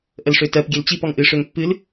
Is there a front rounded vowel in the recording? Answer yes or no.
yes